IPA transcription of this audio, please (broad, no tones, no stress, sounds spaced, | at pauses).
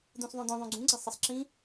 d̪ ũ s ðˤ õ d̪ õ ðˤ õ ɡ͡ǀ ũ ɡ͡ǀ a sˤ ɐ sˤ ǁ ĩ